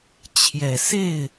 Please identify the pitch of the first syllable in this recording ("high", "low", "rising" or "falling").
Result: low